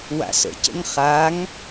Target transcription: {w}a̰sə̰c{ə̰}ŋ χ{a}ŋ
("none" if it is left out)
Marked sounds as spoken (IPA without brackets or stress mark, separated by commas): w, ə̰, a